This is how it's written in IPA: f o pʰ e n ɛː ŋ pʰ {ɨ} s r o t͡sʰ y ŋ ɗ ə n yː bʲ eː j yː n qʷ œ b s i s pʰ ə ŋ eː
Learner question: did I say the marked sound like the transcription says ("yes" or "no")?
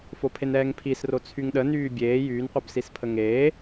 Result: no